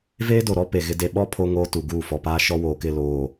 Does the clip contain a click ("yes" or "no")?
no